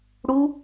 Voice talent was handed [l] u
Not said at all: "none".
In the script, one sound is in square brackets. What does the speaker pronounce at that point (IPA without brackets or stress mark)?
ɽ